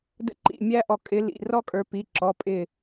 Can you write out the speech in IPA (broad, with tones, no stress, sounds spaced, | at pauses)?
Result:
d ə̰˥ ǃ ḭ˧˩ mʲ æ˥ ʔ ɔ˧˩ kʼ ɪ˨˦ l ḭ˩˧˩ r ɔ˥ kʼ ə˞˨˦ p i˩˧˩ ǁ ɔ˩˧˩ pʼ ɪ˧˩